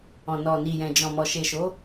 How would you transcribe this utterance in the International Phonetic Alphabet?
ɔ̃˨nɔ˨ ni˨jɛ̃˨ d͡ʒɔ̃˨mɔ˨ ʃe˨ʃo˨˦

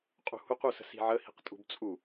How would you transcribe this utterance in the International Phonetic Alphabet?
qʼṳhuq usə̤si̤ʕə hi̤qtʼṳbt͡sʼu

